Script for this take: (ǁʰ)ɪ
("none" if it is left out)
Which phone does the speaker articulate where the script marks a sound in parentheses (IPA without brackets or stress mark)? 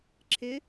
ǁʰ